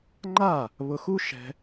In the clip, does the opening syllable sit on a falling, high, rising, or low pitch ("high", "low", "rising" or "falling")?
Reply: falling